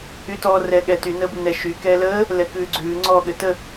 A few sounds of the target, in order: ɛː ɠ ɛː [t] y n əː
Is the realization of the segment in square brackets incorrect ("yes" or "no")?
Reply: no